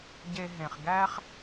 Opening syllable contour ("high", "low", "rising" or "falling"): low